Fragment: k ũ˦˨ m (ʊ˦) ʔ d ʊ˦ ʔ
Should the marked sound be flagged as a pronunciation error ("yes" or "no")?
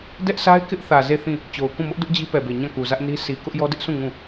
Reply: no